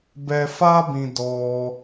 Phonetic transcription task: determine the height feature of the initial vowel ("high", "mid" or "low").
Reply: mid